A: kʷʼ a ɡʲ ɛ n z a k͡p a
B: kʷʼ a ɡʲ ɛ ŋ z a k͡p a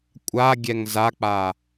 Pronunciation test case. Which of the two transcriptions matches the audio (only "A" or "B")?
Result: B